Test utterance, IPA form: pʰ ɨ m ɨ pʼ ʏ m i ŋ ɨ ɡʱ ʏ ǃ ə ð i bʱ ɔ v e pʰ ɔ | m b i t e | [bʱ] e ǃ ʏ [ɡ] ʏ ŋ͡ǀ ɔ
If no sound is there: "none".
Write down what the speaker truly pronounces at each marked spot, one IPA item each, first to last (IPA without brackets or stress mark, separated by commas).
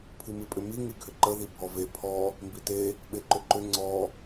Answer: ɓ, ǃ